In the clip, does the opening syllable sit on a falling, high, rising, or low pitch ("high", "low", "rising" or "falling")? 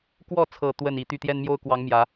falling